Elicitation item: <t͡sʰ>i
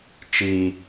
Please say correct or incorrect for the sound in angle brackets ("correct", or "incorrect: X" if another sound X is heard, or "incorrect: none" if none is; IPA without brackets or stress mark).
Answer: incorrect: t͡ʃ